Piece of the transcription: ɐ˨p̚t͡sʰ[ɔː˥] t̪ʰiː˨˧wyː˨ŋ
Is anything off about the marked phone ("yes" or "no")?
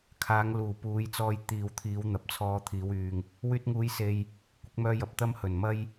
yes